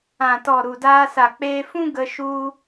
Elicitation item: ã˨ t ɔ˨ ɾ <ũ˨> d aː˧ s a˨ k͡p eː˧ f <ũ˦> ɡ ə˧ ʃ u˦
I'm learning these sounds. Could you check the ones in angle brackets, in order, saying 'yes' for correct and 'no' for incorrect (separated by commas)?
no, yes